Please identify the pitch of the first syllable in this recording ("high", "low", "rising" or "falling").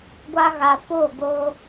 high